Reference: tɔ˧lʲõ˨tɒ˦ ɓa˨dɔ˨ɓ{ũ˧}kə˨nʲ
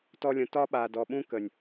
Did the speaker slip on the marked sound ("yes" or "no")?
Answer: yes